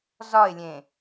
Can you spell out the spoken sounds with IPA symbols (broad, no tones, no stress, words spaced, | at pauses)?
zɒɪ̯lʲẽ